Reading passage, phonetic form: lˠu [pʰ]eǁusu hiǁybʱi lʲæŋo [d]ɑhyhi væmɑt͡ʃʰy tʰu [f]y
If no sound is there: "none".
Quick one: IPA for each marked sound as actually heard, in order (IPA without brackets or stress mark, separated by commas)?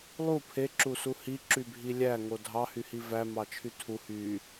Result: pʰ, dʱ, h